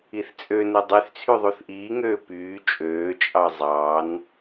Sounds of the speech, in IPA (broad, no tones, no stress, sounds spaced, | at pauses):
i θ t͡sʼ ø n u dˤ y θ t͡sʰ y ðˤ u θ ʔ iː ŋ øː p yː t͡ʃʼ øː t͡ʃʼ ɑ zˤ ɑ n